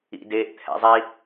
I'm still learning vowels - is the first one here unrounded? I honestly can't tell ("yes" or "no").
yes